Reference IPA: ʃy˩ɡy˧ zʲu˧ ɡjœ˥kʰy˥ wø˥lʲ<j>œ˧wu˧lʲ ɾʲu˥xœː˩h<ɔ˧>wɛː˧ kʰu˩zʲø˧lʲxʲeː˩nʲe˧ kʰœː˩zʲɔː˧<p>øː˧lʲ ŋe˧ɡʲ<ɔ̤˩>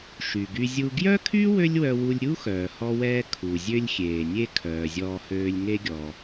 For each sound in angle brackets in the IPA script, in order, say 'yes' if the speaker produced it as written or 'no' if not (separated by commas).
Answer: no, yes, no, no